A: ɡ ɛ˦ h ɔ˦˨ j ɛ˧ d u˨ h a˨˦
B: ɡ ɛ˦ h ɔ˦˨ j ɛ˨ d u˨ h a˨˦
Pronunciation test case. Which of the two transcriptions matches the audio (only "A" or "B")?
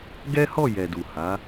B